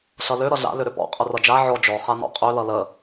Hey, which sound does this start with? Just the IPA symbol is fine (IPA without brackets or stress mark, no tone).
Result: ɬ